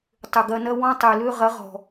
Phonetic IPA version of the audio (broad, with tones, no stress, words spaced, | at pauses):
tˤʏ˨ɡɐ˧nɐ˦ wɔ̃˦tˤy˨lø˦ ʁɐ˨˦ʁɔ̤˨